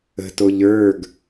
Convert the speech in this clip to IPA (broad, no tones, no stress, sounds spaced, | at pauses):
ə̤ t o ʎ ə˞ ɡ